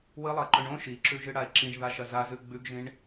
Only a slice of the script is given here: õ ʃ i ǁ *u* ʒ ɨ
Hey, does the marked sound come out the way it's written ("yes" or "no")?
no